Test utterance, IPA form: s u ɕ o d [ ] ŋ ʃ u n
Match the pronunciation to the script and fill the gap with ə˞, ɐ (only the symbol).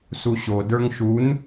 ə˞